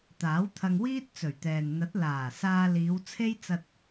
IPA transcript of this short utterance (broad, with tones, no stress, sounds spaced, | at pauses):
t̪ aː˨˥ w t̪ʰ ɐ˧ ŋ w iː˥ t̚ t͡s ɵ˨˩ ɥ t̪ ɛː˨ n n̪ ɐ˨˥ t̚ l aː˨˩ s aː˧ l iː˨˧ w t͡sʰ e˥ j t͡s ɐ˧ t̚